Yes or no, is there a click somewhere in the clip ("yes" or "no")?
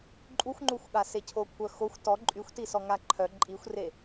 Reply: yes